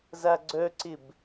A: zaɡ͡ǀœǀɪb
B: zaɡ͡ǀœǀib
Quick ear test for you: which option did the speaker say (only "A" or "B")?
A